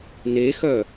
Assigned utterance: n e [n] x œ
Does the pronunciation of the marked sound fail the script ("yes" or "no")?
yes